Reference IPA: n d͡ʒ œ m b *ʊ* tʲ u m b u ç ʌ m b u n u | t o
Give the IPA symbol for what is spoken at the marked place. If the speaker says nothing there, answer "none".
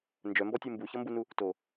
ɔ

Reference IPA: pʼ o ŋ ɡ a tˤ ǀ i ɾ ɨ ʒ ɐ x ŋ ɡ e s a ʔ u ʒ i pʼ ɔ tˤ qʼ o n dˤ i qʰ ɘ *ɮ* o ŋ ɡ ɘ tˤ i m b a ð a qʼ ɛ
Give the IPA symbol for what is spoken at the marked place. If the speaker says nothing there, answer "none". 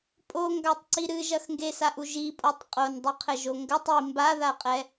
ʒ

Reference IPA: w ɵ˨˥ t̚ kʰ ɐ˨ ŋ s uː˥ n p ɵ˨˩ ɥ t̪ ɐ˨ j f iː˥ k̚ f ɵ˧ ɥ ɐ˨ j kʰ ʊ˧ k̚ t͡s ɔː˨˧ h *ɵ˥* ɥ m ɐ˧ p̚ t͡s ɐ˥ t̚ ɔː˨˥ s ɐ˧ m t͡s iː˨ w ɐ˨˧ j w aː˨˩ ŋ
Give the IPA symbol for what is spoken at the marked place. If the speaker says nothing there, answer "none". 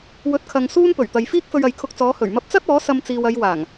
ɵ˨˩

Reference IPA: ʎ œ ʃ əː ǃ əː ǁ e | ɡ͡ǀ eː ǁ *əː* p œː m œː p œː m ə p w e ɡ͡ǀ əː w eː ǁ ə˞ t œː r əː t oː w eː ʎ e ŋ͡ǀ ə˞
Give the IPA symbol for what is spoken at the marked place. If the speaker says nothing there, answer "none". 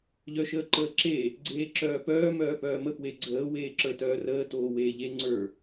œː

